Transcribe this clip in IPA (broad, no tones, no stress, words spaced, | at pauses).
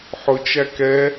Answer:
ħʊt͡ʃæ kɛ